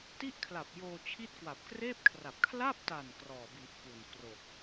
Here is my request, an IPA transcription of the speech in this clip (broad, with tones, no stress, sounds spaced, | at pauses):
t i˥˩ ʔ kʰ l a˨˩ p̚ j oː˧ t͡ɕʰ i˦˥ t̚ k w a˨˩ p̚ k r eː˥˩ p̚ kʰ r a˨˩ p̚ kʰ l a˥˩ p̚ t a˨˩ n k r ɔː˨˩ b i˨˩ ʔ k u˨˩ n k r o˨˩ k̚